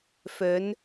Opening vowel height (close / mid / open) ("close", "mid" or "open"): mid